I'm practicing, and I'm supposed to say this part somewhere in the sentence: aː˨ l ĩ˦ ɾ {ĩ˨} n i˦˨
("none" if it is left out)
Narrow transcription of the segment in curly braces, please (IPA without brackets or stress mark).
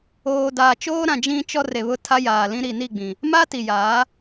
i˨